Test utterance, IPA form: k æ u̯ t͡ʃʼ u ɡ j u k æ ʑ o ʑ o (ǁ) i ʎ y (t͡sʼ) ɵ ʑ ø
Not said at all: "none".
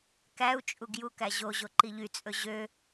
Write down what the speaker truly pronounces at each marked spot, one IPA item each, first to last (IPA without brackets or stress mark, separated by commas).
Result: ǃ, t͡sʼ